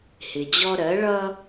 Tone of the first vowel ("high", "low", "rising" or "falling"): low